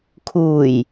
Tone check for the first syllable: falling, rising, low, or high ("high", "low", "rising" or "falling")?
low